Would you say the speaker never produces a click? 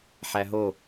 yes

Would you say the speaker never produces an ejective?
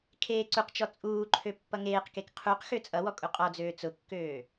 no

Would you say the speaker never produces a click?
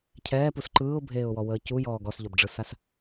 no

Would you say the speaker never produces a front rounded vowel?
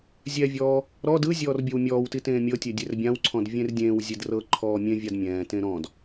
yes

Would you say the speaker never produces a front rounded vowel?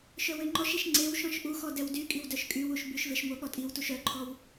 no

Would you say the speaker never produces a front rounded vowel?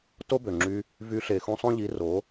no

